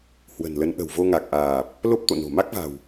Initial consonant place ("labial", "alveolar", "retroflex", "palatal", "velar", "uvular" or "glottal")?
glottal